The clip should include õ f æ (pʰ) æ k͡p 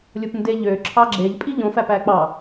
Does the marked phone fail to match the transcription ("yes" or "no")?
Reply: yes